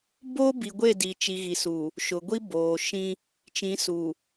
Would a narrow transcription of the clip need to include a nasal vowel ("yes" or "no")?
yes